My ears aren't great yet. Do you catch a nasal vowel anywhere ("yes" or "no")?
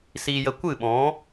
yes